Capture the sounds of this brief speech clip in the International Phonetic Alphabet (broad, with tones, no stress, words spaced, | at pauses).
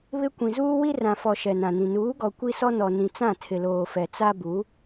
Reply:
βɪ˦ kʷĩ˨zuː˦ wi˦rã˨fɔ˨ ʃɛ˨nã˨nĩ˨ nuː˨˦ɡɔ˨ kʷi˦sɔ˦ nɔ˨ nĩ˨t͡sã˦˨tʰɪ˨loː˨ fɛ˨t͡sa˦bu˨˦